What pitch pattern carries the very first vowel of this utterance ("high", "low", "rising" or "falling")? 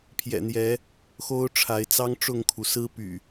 low